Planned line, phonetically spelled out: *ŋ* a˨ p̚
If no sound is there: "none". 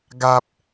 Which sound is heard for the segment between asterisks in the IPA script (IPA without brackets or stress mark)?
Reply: ɡ